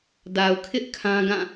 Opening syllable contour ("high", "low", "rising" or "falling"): low